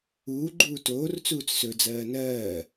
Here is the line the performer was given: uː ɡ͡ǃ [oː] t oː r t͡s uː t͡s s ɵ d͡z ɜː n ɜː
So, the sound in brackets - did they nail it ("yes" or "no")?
no